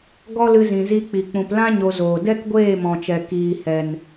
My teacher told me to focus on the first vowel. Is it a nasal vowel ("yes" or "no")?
no